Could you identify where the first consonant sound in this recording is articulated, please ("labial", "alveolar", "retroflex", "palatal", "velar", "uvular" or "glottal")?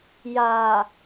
palatal